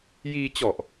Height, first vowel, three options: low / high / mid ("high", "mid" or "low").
high